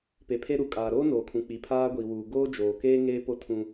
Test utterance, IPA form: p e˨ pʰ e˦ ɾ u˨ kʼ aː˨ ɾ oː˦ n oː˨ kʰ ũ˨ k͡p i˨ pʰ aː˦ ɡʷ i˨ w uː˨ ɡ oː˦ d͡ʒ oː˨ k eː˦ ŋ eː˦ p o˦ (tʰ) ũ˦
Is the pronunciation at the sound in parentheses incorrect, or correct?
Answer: correct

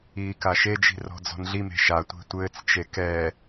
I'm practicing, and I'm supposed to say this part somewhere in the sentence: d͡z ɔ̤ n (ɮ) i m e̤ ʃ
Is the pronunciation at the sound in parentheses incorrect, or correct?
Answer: correct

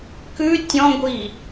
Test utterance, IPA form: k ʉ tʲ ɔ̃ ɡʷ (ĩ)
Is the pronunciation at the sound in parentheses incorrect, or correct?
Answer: incorrect: i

